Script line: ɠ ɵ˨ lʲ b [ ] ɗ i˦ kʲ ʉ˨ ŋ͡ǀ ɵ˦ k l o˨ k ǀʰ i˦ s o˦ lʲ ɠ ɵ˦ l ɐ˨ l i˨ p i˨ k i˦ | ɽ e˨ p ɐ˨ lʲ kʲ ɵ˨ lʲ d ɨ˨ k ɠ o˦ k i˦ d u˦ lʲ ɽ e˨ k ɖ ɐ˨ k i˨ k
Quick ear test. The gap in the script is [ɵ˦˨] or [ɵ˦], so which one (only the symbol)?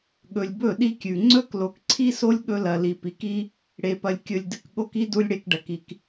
ɵ˦˨